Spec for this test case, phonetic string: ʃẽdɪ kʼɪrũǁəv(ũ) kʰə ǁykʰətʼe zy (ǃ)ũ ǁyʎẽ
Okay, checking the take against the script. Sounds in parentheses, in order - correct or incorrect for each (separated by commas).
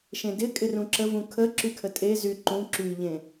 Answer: correct, correct